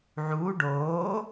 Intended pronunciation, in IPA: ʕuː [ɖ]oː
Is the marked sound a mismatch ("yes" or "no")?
no